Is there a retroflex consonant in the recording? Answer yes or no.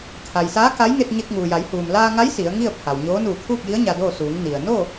no